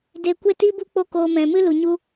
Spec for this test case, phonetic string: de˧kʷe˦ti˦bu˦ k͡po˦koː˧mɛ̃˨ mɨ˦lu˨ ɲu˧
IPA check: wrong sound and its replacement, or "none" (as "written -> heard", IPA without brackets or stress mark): none